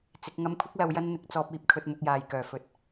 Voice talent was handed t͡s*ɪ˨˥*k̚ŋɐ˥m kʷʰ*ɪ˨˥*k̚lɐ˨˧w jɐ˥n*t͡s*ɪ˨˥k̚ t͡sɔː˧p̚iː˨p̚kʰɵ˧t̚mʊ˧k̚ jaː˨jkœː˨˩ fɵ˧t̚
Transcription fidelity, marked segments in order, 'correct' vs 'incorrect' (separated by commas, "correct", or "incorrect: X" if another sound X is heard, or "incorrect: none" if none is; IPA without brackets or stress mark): correct, incorrect: ɪ˥, incorrect: n̪